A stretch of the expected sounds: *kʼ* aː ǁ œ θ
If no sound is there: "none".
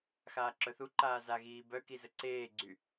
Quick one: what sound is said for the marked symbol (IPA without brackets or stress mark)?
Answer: x